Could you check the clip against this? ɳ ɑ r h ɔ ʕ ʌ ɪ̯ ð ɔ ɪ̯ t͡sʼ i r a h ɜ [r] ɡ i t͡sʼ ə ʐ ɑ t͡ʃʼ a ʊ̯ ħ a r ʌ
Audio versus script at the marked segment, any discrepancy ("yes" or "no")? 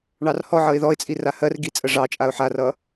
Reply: no